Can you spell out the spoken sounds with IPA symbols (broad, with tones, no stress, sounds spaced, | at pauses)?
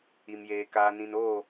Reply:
i˨ m j eː˨ k aː˨ n ĩ˨ n oː˦˨